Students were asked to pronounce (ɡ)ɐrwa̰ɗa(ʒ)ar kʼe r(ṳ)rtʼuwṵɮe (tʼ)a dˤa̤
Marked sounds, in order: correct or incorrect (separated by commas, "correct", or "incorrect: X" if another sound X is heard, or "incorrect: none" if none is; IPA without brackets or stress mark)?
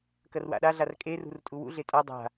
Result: incorrect: k, incorrect: ɮ, correct, correct